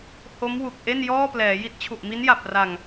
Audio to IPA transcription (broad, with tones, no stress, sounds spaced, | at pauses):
h o˦˥ m w u˨˩ k̚ ʔ e˥˩ n j ɔː˥˩ p l ɛː˩˦ j i˦˥ t̚ t͡ɕʰ u˨˩ ʔ m i˦˥ n j a˨˩ p̚ r a˨˩ ŋ